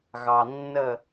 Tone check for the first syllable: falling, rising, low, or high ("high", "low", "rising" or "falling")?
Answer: low